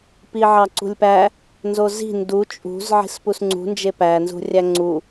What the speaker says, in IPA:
piʕɑǀṳlʲpæ | nzozi̤ ndu t͡ʃʼṳz ʕi̤spusŋ͡ǀṳ nd͡ʒepæ nzṳrʲæŋ͡ǀu

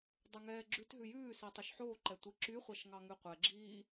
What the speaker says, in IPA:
dˤʉŋɛːɡ͡ǁʉtɦʉ jʉːsi tˤoʃħoːǃɛ tʷiǁyχʷɑʃ ŋɑŋʉqʷɛɡ͡ǁiː

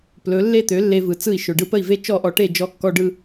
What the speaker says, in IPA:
plɵ˩˥ lːe˥˩t̪ø˩˥ lːe˧vɯ˩t͡sɯ˥˩i̯ ʃɵ˩ɖɯ˧pə˥˩i̯ve˥ t͡ʃɔ˥˩ʔɔ˧ʈe˥˩ d͡ʒɔ˧kːɔ˧ ɖɯ˧

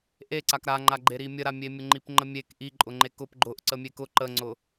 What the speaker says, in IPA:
ʔeǀak ɾaŋ͡ǃaɡ͡ǃeɾi mʲəɾamʲemʲʊ ŋ͡ǃipŋ͡ǃəmʲek ʔiǃʼʊŋ͡ǃe kʊp ɡ͡ǃʊʔ ǀəmʲekʊ ǃəŋ͡ǀʊ

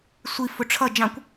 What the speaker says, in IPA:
sʷi fʊʈ͡ʂʰʌ d͡ʒɑ̃kʷ

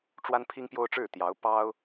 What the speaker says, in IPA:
ʈ͡ʂwa˥npʰi˥ŋpjo˥ʊ̯ʈ͡ʂɻ̩˥˩ t̪jɑ˧˥ʊ̯ pɑ˥ʊ̯

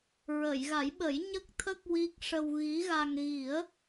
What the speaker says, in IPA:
ɹə˨˩˨jɣa˨˩˦jɓə˨˩˦j ɲə˦˥k̚t̪ʰə˦˥k̚ wi˦˥k̚ ʂə˧wɣi˧˥ɣa˧ŋ ɣi˨˩˦ə̯

